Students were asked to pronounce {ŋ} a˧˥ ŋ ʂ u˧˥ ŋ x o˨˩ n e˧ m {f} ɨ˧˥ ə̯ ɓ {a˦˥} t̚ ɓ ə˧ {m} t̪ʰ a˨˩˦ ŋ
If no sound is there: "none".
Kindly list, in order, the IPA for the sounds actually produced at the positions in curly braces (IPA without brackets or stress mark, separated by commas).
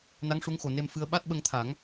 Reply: n, f, a˦˥, ŋ